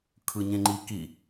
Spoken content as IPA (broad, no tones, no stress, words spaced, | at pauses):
kʰɯɲẽŋ͡ǃiki